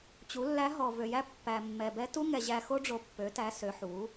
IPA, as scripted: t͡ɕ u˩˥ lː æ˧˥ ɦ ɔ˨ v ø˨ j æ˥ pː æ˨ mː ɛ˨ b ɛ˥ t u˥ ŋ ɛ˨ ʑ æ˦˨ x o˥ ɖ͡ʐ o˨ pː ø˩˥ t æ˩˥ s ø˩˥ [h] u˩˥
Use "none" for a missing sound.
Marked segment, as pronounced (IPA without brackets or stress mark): ħ